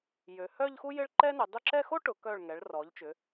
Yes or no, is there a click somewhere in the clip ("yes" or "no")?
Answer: yes